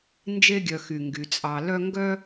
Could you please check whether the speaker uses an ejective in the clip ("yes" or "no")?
yes